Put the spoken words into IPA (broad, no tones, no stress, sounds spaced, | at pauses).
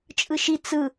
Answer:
t͡ʃʼ ɯ ʃ i t͡s ɯ